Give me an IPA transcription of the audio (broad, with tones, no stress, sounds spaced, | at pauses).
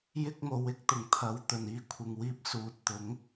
j ɪ˧ k̚ m o˨˧ w ɪ˧ k̚ t̪ ʊ˨˩ ŋ t̪ʰ ɐ˨˧ w t̪ ɵ˨˩ n iː˧ kʷʰ ɪ˨ ŋ w iː˧ p̚ s uː˨ t̚ t̪ ʊ˨˥ ŋ